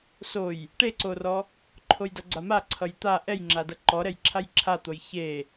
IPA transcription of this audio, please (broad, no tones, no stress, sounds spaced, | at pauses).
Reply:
s o j | ʈ e ǀ o r ɔ | ǃʰ o j d ʌ ɡ͡ǀ a m a ǀʰ ʌ j t̪ a ʔ ɛ j ŋ͡ǁ a d ʌ ǃ ɔ ɾ ɛ j ǁʰ a j ǁʰ a t̪ o j ç e